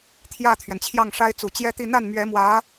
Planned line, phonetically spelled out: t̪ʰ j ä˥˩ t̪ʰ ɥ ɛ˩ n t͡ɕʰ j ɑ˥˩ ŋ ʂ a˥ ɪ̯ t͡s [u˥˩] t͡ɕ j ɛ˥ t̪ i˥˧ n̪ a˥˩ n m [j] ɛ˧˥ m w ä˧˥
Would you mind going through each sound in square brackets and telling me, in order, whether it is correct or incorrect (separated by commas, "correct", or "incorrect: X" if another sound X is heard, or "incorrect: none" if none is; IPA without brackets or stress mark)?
incorrect: u˨˩, incorrect: ɥ